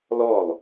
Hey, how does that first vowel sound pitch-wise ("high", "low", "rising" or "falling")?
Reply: falling